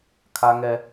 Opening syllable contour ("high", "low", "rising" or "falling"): high